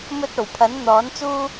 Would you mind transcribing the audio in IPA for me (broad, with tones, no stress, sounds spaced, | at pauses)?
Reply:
m ɵ˧ t̚ o˨˩ w pʰ ɐ˨˥ n n̪ ɔː˨˥ n t͡s uː˥